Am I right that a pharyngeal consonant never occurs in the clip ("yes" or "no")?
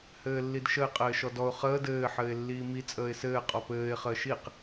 no